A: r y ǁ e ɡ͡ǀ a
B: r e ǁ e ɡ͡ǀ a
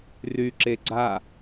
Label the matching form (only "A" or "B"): A